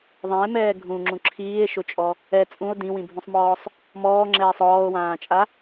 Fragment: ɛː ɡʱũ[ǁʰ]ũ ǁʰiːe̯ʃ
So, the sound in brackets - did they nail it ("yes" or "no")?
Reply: no